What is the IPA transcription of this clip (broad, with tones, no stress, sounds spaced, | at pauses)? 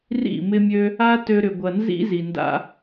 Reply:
r ḭ˦˨ m ɪ˧ mʲ ø˧ | a˦ t ø˧ ɾ ʏ˨ ɡʷ ɐ˨ n z ḭ˧ z i˨ n d a̰˧